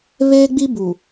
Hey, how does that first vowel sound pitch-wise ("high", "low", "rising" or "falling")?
high